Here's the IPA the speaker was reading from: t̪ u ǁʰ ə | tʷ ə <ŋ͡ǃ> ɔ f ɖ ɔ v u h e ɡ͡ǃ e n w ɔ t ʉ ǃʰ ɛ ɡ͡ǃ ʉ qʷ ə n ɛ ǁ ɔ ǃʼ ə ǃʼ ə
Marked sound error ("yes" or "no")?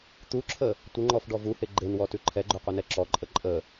no